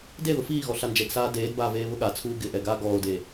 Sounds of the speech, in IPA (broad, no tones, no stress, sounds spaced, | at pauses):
d e ð ʊ f iː ɣ ɔ ɬ a n d͡ʒ ɛ ɡ s aː d eː d b aː v eː β ʊ ɠ a t͡sʰ uː ɡ ɪ ʔ ɛ ɡ aː ɡ ɔː o̯ d eː